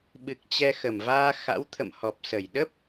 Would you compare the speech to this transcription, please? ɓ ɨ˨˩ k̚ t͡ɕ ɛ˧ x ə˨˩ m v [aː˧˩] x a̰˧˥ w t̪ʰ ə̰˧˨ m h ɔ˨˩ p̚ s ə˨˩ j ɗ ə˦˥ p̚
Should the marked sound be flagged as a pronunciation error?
yes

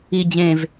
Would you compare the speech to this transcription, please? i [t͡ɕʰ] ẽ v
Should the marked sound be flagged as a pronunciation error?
yes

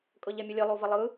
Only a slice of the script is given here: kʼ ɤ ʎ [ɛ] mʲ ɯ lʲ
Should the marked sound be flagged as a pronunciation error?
no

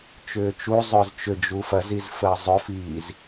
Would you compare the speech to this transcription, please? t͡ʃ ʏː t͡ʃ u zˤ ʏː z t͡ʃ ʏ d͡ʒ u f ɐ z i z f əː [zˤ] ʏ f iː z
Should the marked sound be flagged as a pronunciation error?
no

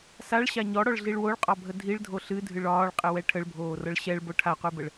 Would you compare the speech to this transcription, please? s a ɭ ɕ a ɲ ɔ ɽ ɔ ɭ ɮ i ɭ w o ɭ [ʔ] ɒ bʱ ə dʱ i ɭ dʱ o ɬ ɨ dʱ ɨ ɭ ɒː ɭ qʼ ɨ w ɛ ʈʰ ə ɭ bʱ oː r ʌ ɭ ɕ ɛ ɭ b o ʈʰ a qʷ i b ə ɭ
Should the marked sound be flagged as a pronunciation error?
yes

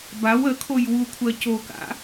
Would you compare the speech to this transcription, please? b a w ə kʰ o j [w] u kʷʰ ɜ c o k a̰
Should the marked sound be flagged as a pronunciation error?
no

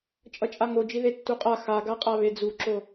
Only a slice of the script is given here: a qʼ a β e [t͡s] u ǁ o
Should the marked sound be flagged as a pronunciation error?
yes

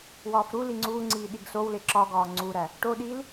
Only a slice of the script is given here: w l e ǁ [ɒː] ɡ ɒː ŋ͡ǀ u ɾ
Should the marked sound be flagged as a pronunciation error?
yes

